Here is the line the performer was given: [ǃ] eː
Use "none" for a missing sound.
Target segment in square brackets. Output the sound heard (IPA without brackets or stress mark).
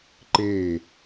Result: ǃ